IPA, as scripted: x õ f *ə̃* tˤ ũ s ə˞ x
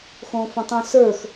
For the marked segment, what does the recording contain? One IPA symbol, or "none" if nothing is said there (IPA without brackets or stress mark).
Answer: ə̃